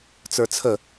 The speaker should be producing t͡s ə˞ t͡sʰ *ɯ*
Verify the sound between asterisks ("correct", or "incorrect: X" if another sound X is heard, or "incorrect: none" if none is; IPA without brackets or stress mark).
incorrect: ə